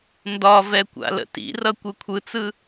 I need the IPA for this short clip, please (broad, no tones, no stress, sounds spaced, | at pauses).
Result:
n d ɒ v ɛ kʷ a̰ l ə̰ t ḭ r ʌ kʷ ɯ kʷʰ ɯ t͡s ɯ